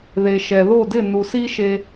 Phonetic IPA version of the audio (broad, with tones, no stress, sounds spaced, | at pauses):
ð e˨ ʃ ɛ˨ ð o˦˨ d ɪ˦˨ n u˨ s i˦ ʃ e˧